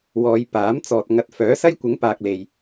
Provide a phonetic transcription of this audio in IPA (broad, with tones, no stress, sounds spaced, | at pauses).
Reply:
w ɔː˨˧ j p aː˨˥ m t͡s ɔː˨ t̚ ŋ ɐ˨ t̚ f œː˨˥ s ɐ˥ j kʷ ɪ˨˥ ŋ p aː˨ k̚ l e˧ j